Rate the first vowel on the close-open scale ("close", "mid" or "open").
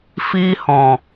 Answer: close